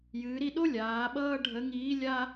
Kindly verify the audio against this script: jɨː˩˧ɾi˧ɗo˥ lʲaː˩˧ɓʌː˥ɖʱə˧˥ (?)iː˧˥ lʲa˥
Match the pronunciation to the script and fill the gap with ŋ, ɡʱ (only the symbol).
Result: ŋ